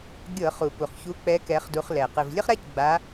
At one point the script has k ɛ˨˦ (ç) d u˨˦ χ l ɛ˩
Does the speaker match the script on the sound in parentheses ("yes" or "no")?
no